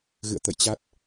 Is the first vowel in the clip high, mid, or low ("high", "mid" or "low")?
high